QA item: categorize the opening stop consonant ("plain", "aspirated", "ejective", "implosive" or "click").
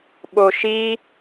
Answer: implosive